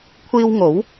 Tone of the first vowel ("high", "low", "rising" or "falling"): high